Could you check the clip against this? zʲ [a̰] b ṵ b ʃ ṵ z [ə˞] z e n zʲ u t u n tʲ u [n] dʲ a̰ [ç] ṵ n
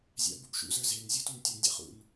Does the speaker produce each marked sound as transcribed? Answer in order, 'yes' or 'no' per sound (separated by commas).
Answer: yes, yes, yes, no